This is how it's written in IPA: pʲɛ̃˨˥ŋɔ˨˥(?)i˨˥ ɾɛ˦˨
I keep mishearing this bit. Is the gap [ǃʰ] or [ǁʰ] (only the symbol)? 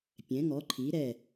ǃʰ